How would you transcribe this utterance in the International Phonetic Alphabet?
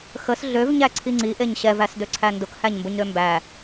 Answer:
xəs ɮøv ɲæǀʰiŋ͡ǀi ʔeɲɕɛv æsdøǀʰændʊk hæɲmbʊɲɾømbæ

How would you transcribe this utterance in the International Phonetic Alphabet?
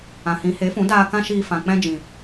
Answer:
ã˨hĩ˨˦ he˨˦fũ˨˦daː˧ kã˦ʃiː˧ fã˨k͡pɛ̃˦d͡ʒĩ˨

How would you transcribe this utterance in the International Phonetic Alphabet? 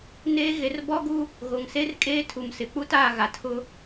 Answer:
neː˦ɣe˨˦r bɔ˦ɡu˦ | ɣo˨ŋ se˦rkʼeː˦ tʰu˨msɪ˨k͡pu˦ taː˦˨ɣa˨tʰʊ˦

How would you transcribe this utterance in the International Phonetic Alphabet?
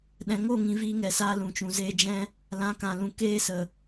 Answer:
ɗɛ̃˨ŋo˦˨ŋĩ˨ viː˧ŋɛ˨saː˧ lũ˨t͡ʃũ˨zeː˧ d͡ʒɛ̃˧ | lã˨˦kã˨lũ˨ keː˧sə˨

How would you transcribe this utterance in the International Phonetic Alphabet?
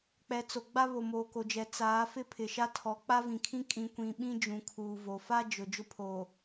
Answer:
k͡pɛ˨t͡so˨ɡ͡ba˦ βo˨moː˨ko˨d͡ʒɛ˨ t͡saː˨˦ fɪ˦pʰɪ˨ʃa˦ tʰɔ˨˦k͡pa˦vĩ˨kʰĩ˦ kʼĩ˨kʷĩ˨ɓĩ˦ d͡ʒũ˨kʰuː˨vo˨ fa˦ d͡ʒʊ˨ d͡ʒʊ˦pʰoː˨

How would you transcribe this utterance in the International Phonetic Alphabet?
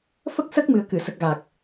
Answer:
fə˦˥k̚sə˦˥k̚mɨ˨˩ə̯ kɨ˨˩˨sə˨˩k̚ɣa˨˩k̚

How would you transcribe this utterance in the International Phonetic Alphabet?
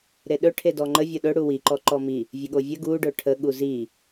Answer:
ɾeɗɵ ʈʰedɔŋ͡ǃə vʲoɗɵ ɽuwi ǃɔǃɔmi | vʲəɠovʲə ɡu ɖɵʈʰə ɠuzi

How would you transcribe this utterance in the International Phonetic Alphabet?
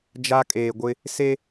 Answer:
d͡ʒa˦kʼeː˨ɡʷɪ˦ | se˦

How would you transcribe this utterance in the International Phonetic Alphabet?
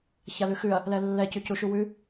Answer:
çalʉxʉɐ̯ | lɛlːɛ cʉcuʃuwʉ

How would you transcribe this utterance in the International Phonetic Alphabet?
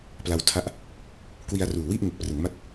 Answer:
pla˧wtʰa˦˥ʔ | kwi˧a̯ruː˨˩wi˥˩ʔ ŋe˨˩k̚prɯ˩˦ŋma˦˥t̚

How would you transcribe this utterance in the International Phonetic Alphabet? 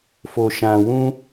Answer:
fo˨ʃã˨wũ˧

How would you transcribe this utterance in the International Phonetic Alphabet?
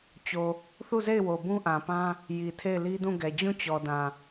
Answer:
t͡ɕo˨ | θu˦˨ze˦˨ɪ̯ wo˨bũ˦ʔã˨pã˦ | ji˨ tʰe˦˨ɪ̯li˦dũ˦˨ɡɛ˨ d͡ʑũ˦˨t͡ɕɔ˨dã˨

